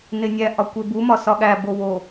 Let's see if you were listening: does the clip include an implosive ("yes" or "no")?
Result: yes